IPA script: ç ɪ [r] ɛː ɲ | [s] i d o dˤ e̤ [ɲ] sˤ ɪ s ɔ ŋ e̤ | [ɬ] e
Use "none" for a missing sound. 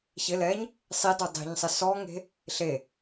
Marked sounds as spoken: l, sˤ, ɲ, ɬ

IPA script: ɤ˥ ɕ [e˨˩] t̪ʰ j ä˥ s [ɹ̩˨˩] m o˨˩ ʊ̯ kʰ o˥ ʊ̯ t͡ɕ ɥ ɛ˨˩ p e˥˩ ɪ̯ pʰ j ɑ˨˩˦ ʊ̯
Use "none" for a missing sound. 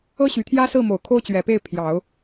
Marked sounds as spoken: y˨˩, ɹ̩˥˩

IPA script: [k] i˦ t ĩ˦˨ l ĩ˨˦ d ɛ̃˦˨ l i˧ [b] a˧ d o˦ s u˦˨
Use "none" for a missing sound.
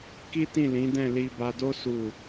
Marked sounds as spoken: k, b

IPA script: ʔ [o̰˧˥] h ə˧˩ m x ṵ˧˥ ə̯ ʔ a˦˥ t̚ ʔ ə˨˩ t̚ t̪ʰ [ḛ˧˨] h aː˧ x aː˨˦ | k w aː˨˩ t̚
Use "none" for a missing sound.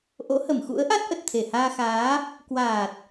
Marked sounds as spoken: o̰˧˥, e˧˩

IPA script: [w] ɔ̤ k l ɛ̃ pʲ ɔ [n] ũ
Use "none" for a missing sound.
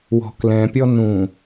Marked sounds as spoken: w, n

